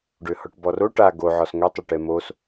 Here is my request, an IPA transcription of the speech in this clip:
ɖ ø h ɔ ʈ b ɔ r o ʈ a ɡ o ʕ ɔ s ŋ ø tˤ ɪ ʈ ɛ m o s

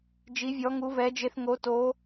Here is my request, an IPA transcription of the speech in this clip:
d͡ʒ i˦˥ vʲ ɔ˦˥ ŋ u˦˥ v ɛ˦˥ d͡ʒ e˦˥ θ ŋ o˦˥ t o˦˥

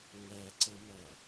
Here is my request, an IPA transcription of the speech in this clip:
ŋ æ ǀ ə m æ

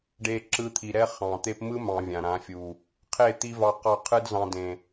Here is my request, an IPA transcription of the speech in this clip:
ɖ e˧ ǁ ɯ˧ t̪ʰ i˨ ɾ ɛ˦ χ ɑ̃˨ t̪ e˦ p m ɯ˦ m ɑ̃˨ vʲ ã˨ ɾ ã˨˦ fʲ u˨ | qʰ e˦˨ t̪ i˦ v ɑ˧ q ɑ˦˨ qʰ ɯ˦ d z ɑ̃˧ d ẽ˨

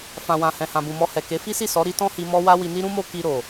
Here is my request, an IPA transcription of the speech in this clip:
f ã˨ w ã˨ h ɛ̃˨ h ã˨ b ũ˨ m ɔ˧ h ɛ˨ k e˨˦ f i˦ s i˦˨ s ɔ˨˦ ɾ i˦ t ɔ̃˦ h i˧ m ɔ˦ w a˦ w i˧ n i˦ ɾ ũ˦ m o˦ k i˧ ɾ o˨

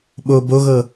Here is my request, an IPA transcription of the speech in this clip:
ɓ o b o ɣ ɤ

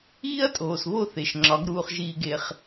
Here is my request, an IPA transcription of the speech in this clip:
iː˦ ɐ̯ tʼ oː˨ s β o˦˨ θ e˨ ʃ ŋ͡ǁ ɒ˨˦ ɡ ɾ uː˧ χ ʒ iː˧ ɡ e˧ χ

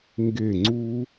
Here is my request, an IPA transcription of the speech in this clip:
ŋ ɡ e˦˨ ŋ͡ǀ u˦

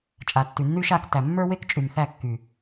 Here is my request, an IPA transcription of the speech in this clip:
t͡ʃʼ a˨ tː y˨ nː y˦ ʃ a˦˨ k t æ˨ mː ə˞˦ w e˦ k t͡ʃʼ y˨ m θ æ˦˨ kː y˨

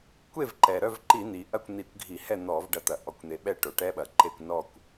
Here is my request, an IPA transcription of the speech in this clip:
kʷ e˥˨ v ǃ ɛ˩ ɾ œ˥˨ v ǃ i˧˩˧ n̪ i˩ ʔ ɐ˥˨ kʷ n̪ i˧˩˧ kʷ ɡʱ i˧˩˧ h ɛ˥˨ n̪ ɔ˧˩˧ v ɖ ɐ˥˨ t̪ ɐ˧˩˧ ʔ ɔ˩ kʷ n̪ e˩ ɓ ɛ˥˨ ʈ o˩ ʈ ɛ˦˥ ɓ ɐ˩ ǃ e˥˨ kʷ n ɔ˥˨ kʷ

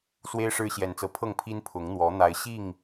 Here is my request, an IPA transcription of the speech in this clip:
s w e˦ ɪ̯ ʂ ɻ̩˦ ɕ j ɛ˨˦ n t͡s ɤ˨˦ pʰ ɤ˥˨ ŋ pʰ i˦ n pʰ ʊ˨˦ ŋ n̪ w ɔ˨˦ n̪ a˨˦ ɪ̯ ɕ i˥˨ ŋ

